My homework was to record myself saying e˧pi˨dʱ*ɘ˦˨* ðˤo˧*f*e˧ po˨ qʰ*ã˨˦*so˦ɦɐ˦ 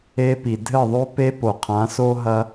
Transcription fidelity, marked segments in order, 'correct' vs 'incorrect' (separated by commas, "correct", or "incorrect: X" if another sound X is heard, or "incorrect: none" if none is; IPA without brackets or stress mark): correct, incorrect: p, correct